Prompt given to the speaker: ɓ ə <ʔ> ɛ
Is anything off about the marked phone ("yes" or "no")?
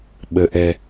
no